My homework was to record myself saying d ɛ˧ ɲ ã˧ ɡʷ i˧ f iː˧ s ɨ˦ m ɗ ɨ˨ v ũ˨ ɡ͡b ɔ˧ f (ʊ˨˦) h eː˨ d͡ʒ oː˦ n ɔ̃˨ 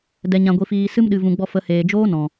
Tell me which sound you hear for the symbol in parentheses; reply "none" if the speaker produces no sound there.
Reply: ə˨˦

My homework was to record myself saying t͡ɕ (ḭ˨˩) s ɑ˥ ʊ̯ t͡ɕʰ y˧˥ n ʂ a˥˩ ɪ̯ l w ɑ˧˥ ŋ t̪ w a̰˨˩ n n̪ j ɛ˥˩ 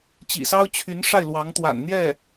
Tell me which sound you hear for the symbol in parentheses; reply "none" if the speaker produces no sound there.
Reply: ḭ˨˩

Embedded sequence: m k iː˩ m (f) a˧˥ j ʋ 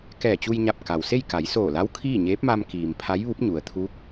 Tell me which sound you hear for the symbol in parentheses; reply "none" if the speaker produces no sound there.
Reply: pʰ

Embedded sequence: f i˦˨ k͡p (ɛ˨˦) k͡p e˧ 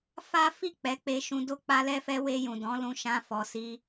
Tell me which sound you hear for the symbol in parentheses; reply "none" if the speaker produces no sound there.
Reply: ɛ˨˦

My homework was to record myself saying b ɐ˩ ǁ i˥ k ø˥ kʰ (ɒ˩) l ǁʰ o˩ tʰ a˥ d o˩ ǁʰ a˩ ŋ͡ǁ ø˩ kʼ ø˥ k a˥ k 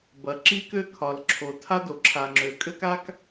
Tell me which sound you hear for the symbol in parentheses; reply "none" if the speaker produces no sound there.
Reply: ɒ˩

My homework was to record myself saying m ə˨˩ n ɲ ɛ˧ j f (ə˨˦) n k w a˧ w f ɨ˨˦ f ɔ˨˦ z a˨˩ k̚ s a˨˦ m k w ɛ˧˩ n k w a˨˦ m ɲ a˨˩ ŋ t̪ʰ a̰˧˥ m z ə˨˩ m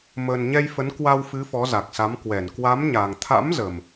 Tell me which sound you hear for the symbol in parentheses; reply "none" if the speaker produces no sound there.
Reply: ə˨˦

